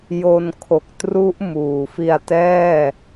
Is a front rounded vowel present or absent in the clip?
absent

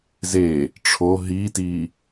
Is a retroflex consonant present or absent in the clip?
present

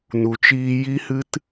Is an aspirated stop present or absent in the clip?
absent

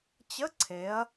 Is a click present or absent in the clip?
present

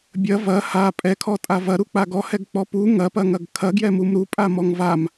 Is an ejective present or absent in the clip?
present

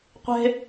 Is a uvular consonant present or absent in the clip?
present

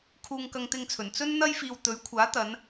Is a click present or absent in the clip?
absent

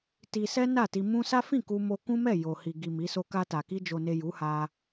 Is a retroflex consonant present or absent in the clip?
absent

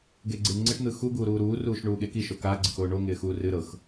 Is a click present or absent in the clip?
present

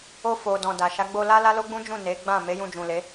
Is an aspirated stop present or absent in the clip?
absent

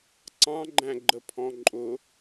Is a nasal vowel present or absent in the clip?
present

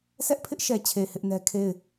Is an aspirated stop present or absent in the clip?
present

